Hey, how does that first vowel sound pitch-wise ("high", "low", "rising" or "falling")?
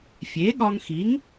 rising